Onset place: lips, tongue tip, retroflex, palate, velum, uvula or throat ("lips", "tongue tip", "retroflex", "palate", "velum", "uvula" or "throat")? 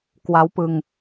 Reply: velum